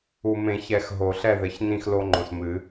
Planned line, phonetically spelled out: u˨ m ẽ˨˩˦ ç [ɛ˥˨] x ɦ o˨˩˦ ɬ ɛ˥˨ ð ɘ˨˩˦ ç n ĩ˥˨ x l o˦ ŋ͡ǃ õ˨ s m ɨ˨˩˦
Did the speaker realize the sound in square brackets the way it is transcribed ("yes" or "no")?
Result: no